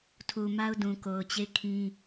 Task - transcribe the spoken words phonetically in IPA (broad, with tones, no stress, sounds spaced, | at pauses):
tʰ u˨ m a˦ ʊ̯ d ũ˨ k o˨ ʊ̯ t͡ɕ e˦˨ ɪ̯ kʰ ĩ˦